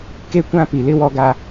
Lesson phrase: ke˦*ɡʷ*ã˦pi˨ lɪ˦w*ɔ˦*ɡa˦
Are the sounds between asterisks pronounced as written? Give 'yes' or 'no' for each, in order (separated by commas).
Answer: no, yes